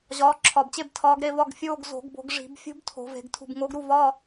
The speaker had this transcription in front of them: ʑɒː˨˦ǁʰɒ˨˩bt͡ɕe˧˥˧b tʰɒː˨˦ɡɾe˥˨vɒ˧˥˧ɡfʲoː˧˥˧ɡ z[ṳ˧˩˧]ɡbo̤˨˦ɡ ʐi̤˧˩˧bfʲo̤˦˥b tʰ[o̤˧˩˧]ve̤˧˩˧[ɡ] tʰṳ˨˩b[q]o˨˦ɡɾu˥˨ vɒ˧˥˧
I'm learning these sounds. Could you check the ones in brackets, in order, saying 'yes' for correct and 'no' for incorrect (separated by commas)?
no, yes, yes, no